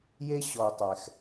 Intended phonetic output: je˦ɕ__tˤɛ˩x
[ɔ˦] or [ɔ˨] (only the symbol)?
ɔ˨